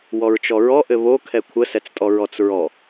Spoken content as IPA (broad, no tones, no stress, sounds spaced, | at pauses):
w ɔ ɹ t͡ʃ ɔ ɹ ɔ ʔ ɘ β o kʰ ɛ kʷʰ ə s ɛ t͡s tʼ ɔ ɹ ɔ t͡s ɹ ɔ